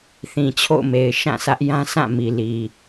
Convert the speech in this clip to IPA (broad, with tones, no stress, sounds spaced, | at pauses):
θ ĩ˨ t͡ɕʰ o̰˦˨ ʊ̯ m e˨ ɪ̯ ʃ ã˦˨ sʰ ä˦ ʔ j ã˦ s ã˦˨ m i˨ l i˨